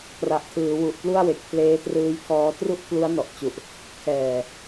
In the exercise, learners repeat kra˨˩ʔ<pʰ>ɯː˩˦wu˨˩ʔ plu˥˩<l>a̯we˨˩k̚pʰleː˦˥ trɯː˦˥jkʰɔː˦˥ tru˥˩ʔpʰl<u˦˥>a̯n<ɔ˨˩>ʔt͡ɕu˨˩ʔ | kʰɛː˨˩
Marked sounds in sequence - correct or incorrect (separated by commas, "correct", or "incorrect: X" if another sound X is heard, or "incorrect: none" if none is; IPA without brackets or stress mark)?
incorrect: tʰ, incorrect: none, correct, correct